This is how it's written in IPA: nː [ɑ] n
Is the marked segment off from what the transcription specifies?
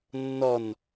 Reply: yes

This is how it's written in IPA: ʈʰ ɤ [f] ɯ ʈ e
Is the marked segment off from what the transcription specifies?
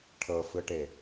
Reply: no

